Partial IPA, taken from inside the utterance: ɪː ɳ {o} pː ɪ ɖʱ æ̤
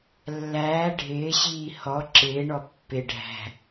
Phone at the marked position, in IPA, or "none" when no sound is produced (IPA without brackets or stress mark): ɔ